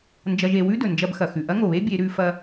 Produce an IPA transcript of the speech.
n d͡ʒ ɐ˧ ʒ e˩˧ w ʉ˥ d ɵ˩ n d͡ʒ ɐ˧ b x ɐ˩ x ʉ˩ ʔ ɐ˥ ŋ o˩ β e˥ bʲ e˩˧ ɾ ʉ˩˧ f ɐ˧

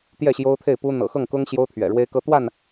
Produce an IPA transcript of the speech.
t̪ j ɛ˥˨ ɕ j o˦ ʊ̯ t̪ʰ e˥˨ ɪ̯ p u˦ n̪ ɤ̰˨˩ x ɤ˥˨ ŋ k ʊ˦ ŋ ɕ j o˦ ʊ̯ t̪ʰ ɥ ɛ̰˨˩ ɻ w e˦ ɪ̯ k ɤ˦ t̪ w a˥˨ n

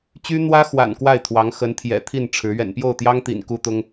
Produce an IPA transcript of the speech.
t͡ɕ y˥ n̪ w ä˥ x w a̰˨˩ n k w a˥˩ ɪ̯ t̪ʰ w ɑ˧˥ ŋ x ə˧˥ n t̪ʰ j ɛ̰˨˩ t̪ʰ i˥˩ n ʈ͡ʂʰ ɻ̩˧˥ ɥ ɛ̰˨˩ n p j o˥˩ ʊ̯ t̪ j ɑ˥ ŋ t̪ ḭ˨˩ n k u˥ t̪ ʊ˥ ŋ

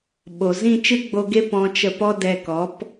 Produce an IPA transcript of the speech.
ɓ o˨ z ĩ˦˨ t͡ʃ ɨ˦ ɡ͡b o˧ ɡ e˦ p ɔ̃˧ t͡ʃ ə˧ p ɔ˦ d ɛ˧ k ɔ˨˦ p

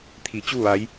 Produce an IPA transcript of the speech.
t̪ʰ i˩˧ t͡ɕ u˥˨ ʋ a˧˥ j

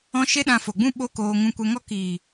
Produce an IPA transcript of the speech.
ɔ̃˦ ʃ e˦ ɗ ã˧ f o˨ ɡ͡b ũ˦ ɓ o˦ k oː˧ ŋ ũ˧ kʷ ɛ˧ ŋ ɔ˦ k iː˨

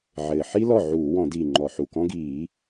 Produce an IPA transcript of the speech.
ʕ ɘː˨˩ ħ i˥ l ɔ˥˩ ʕ uː˧˩˧ w ɔ̃˧˩˧ d i˨˩ ŋ͡ǃ ɔ˧˩˧ ħ u˨˩ k ɔ̃˥ ɡ iː˧˩˧

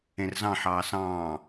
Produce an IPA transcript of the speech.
ẽ r z ɑ̃ ħ ɑː s ɑ̃ː

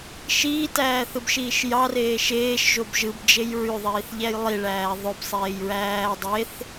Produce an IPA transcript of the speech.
ʃ iː t æː θ ɯ b ʃ iː ʃ j ɑ r eː ʃ eː ʃ ʒ o b ʒ ɯ b d͡ʒ e j ɹ y ðˤ iː θ ʎ æ j lˠ i ɭ æː ðˤ ø b sˤ eː j ɹ æː dˤ e θ

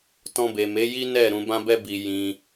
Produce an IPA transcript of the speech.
t ɔ̃˧ b e˨ m e˨˦ j i˦ n ɛ˦˨ ɾ ũ˨ b ã˧ b ɛ˧ b i˨ j ĩ˧

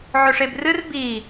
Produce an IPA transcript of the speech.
ʕ ɵ ʂ e b r ɨ r b i

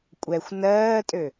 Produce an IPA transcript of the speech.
kʷʼ ɛ xʷ n ɜː tʼ ø

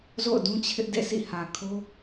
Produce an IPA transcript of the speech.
z o̰˦˨ ʊ̯ d ũ˦ t͡ɕʰ ɪ˦ ʔ d ḛ˦˨ sʰ ḭ˦˨ h ä˨ kʰ o˦

